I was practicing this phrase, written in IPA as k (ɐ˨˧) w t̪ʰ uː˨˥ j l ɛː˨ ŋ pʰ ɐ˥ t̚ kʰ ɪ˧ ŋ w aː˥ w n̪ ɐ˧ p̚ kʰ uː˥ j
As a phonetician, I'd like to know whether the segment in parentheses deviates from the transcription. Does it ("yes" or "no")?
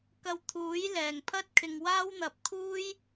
yes